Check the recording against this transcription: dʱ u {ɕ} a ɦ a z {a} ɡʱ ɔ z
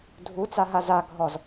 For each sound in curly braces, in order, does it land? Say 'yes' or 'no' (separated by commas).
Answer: no, yes